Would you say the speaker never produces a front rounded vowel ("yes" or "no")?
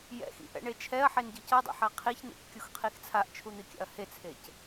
yes